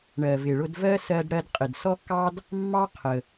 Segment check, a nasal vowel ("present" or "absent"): absent